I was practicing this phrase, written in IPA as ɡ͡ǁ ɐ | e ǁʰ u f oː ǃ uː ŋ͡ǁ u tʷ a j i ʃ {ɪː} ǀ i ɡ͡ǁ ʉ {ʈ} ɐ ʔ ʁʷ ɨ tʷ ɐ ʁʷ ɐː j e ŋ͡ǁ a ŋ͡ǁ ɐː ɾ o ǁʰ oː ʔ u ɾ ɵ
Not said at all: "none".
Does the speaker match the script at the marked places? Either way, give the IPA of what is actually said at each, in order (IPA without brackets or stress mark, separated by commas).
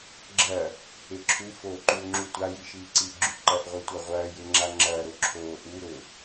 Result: iː, ǃ